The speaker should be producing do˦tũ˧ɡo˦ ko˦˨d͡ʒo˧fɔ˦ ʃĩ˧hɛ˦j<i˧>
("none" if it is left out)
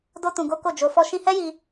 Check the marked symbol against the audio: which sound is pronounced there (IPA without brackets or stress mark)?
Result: i˧